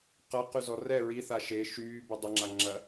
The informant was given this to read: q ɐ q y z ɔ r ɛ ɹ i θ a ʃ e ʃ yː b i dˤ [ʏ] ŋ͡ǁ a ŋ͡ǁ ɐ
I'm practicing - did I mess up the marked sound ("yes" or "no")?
no